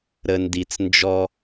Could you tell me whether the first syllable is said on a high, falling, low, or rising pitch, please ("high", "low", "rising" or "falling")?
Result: low